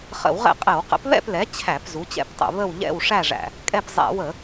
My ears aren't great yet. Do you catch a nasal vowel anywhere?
no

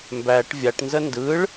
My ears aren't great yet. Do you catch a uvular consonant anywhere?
no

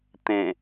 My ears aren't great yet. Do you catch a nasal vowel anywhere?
yes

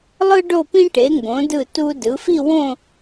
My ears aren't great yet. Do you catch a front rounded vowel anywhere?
no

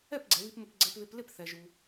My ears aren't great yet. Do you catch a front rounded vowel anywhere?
no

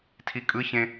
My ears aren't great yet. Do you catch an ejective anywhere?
yes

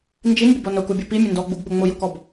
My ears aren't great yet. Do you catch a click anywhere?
no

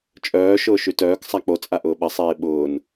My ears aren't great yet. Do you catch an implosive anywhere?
yes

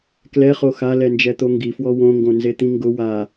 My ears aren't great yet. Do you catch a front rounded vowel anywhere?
no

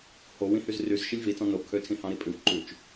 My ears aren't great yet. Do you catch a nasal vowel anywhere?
yes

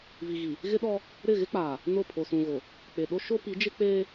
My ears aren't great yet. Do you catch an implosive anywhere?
yes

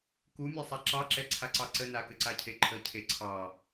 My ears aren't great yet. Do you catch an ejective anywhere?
no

